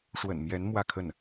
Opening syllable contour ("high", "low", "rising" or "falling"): low